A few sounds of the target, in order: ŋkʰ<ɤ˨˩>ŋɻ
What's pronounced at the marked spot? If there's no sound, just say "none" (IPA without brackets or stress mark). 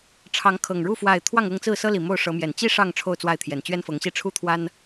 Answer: ɤ˨˩